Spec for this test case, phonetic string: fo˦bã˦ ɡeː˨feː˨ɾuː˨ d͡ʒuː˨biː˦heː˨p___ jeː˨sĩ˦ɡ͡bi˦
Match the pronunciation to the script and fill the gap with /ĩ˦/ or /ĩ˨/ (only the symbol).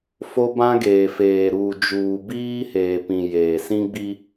ĩ˨